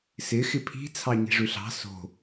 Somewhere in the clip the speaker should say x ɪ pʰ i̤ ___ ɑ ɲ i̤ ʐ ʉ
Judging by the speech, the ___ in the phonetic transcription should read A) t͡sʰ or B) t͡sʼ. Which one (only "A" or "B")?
A